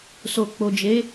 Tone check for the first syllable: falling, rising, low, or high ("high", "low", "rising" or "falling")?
low